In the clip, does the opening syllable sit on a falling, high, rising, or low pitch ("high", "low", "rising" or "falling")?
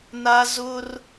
high